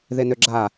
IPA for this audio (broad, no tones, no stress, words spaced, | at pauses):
ðenøɡ͡ǁa